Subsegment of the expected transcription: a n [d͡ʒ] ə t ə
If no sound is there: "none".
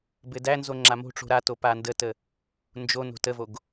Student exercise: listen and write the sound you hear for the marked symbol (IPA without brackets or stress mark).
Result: d